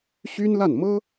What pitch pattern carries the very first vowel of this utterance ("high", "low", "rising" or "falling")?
high